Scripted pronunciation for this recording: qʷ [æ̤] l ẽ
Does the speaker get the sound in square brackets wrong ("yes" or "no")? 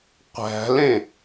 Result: no